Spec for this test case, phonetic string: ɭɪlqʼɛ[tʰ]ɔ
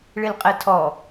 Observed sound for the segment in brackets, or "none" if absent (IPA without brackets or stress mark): tʰ